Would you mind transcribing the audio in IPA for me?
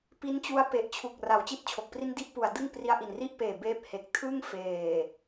p i˦˥ n t͡ɕ u˦˥ a̯ p e˨˩ ʔ t͡ɕʰ u˨˩ k̚ r a˨˩ w t͡ɕ i˥˩ t̚ t͡ɕʰ o˨˩ k̚ p r i˥˩ n d i˥˩ ʔ p u˨˩ a̯ d ɯ˥˩ ŋ p r i˧ a̯ ʔ i˨˩ n r i˥˩ ʔ p eː˨˩ b eː˥˩ p̚ h e˨˩ k̚ tʰ ɯ˥˩ ŋ f eː˨˩

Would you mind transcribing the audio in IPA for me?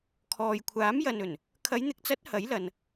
kʰ ɔː˨ j kʷʰ aː˨˥ m j ɐ˨ n ɵ˨˩ n | kʰ ɐ˨˧ j n̪ ɪ˨˥ k̚ t͡s ɐ˨˥ t̚ h ɐ˨˥ j l ɐ˨ n

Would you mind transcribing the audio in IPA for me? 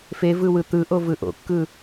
f e v ɯ w ɯ t̪ ɯ ʔ o v ɯ ʔ o̰ kː ɯ

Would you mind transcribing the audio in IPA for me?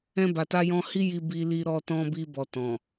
ɛ̃˧ b a˨ t a˧ j ɔ̃˧ h i˦ j i˧ b i˧ l i˧ ɾ ɔ˧ t ɔ̃˧ b i˧ b ɔ˨ t ɔ̃˨

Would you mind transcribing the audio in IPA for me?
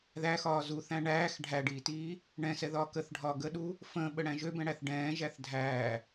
ð æ x ɒː z u θ æ̃ ɳ æː x ɖʱ æ ɖ iː t iː | ɳ ɛ̃ s ɛ ð ɒː k ə θ ɖʱ ɒ ɡ ə ɗ u | f ə̃ː ɓ ə ɽ æ̃ ʒ ø b ɛ̃ ɽ æ θ ɖ ɛ̃ː ʒ æ θ dʱ æː

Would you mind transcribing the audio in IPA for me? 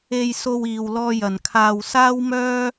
e˧ j s o˧ w iː˨ w l ɔː˧ j ɐ˨ n kʰ aː˧ w s aː˥ w m œː˥

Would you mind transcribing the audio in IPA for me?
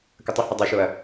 k ə tˤ ə h u dˤ ɛ ʃ o ɐ̯

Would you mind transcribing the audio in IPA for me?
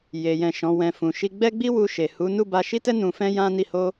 j e˨ j ɛ̃˨ ʃ ɔ̃˨˦ w ɛ̃˧ f ũ˨ ʃ i˧ ɡ͡b ɛ˦ ɡ͡b i˦ w u˧ ʃ e˨ h u˨˦ n u˦˨ b a˧ ʃ i˦ t ɛ˦ n ũ˧ f ɛ̃˦ j ã˦ n i˦˨ h o˧

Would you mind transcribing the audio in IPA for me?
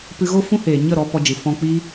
p ɨ˧ ɣ o˦ f ũ˦ h eː˨ ɲ ə˦˨ ɾ ɔ˧ p ɔ˧ d͡ʒ ɨ˨ f ɔ̃˧ k͡p iː˦

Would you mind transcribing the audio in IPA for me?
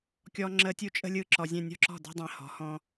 kʲ ɔ˨ ŋ͡ǁ ə˨ tʲ u˦ t͡ʃʼ ə̤˦ lʲ ɯ˥˨ ǁ ɔ˨ zʲ ɛ̃˥˨ nʲ ɔ̤˥˨ ǁ ɔ̤˥˨ d ɛ̤˦ dˤ ɛ̃˨ h ɔ̤˩˥ h ɔ̃˦

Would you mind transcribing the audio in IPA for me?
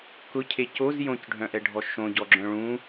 k ʊ cʰ e c o z j õ c ɖʱ œ̃ ʔ ɛ ɖʱ ɔ ʃ õ ɟ ɔ ɡ͡ǁ œ̃ ɭ ũ

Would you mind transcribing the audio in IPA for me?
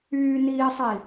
yː n iː sˤ iː

